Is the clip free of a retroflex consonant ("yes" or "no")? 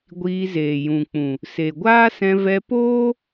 yes